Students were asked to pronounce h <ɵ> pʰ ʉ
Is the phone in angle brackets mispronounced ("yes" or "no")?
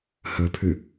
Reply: no